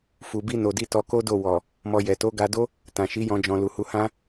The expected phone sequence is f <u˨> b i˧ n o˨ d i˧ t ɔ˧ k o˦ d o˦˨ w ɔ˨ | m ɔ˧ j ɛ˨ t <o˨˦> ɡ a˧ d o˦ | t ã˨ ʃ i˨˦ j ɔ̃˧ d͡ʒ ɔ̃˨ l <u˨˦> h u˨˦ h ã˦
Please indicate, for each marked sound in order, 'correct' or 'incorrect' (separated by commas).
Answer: correct, correct, incorrect